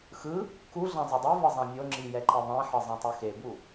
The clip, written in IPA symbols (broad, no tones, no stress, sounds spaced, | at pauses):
x ɯ | k u ɮ ã zˤ ɤ dˤ i v ɤ zˤ ã mʲ o ŋ͡ǁ i j ɛ ǃ ɯ ðˤ ɛ̃ ħ ɤ zˤ ɛ̃ tˤ u x e b u